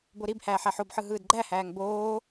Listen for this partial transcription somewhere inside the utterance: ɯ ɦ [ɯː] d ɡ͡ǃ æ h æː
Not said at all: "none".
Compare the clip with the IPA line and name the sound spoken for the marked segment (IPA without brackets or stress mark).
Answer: ɯː